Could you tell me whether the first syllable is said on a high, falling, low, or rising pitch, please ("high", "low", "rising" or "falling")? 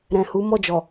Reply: low